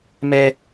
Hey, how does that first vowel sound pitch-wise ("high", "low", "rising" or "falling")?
high